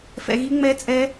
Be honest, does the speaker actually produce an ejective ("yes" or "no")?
yes